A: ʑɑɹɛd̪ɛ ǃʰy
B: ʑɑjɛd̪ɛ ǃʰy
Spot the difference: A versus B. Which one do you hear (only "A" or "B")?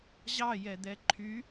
B